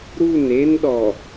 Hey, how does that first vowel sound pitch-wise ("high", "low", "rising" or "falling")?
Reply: falling